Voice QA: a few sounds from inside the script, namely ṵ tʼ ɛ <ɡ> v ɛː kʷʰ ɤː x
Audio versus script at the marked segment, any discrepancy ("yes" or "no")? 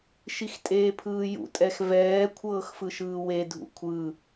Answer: yes